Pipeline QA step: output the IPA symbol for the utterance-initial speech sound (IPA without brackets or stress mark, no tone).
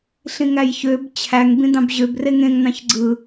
ɬ